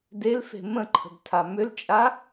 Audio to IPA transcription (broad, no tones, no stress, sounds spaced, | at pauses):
d e l f e̤ m ə̃ ǃʰ ə̤ b tʰ a m ʏ l t͡ʃʼ a